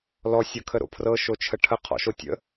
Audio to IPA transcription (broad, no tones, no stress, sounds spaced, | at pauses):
l ɔ sʲ ɤ kʰ ə ɾ o̰ pʰ r ɤ ʃ o t͡ʃʰ ə ʈʰ ə qʰ ɔ̰ ʃ o tʲ ə̰